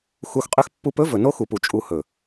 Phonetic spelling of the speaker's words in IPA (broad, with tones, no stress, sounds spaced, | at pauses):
x u˧ x qʼ ø˦ x pː u˧ p ɵ˦ v ɵ˨ n o˦ x u˨ p u˨ t͡ʃʼ u˨ h ɵ˨